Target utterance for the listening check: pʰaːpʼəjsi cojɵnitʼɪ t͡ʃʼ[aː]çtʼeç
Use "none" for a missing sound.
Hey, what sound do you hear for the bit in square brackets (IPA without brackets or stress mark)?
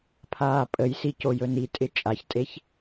a